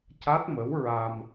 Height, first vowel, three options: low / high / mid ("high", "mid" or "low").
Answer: low